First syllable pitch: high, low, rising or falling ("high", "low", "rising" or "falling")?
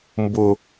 low